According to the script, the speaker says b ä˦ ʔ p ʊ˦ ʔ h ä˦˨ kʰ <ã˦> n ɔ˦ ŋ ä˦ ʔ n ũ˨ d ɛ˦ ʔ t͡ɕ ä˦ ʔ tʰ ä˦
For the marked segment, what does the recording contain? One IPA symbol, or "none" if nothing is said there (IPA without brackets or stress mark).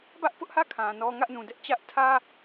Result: ã˨